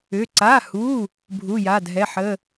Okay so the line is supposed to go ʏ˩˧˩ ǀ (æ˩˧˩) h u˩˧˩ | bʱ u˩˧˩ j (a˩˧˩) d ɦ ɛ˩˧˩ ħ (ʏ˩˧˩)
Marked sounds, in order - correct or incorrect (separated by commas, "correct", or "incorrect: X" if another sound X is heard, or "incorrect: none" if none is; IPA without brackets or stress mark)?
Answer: incorrect: a˩˧˩, correct, incorrect: ə˩˧˩